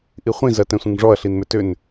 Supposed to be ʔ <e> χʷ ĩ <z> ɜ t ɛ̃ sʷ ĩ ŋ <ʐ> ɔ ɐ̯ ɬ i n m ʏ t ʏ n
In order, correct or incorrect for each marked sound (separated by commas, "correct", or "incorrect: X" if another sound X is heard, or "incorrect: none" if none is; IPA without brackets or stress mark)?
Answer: incorrect: i, correct, correct